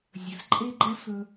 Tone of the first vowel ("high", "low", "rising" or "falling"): low